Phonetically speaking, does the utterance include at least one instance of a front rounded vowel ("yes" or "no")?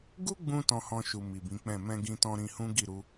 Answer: no